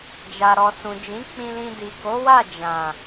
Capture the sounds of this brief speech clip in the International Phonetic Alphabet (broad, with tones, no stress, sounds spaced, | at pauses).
d͡ʒ a˨ ɾ ɔ˨ s ũ˨ d͡ʒ ĩ˨˦ k͡p ĩ˧ l ĩ˧ d i˨ k o˨˦ w a˦˨ d͡ʒ ã˨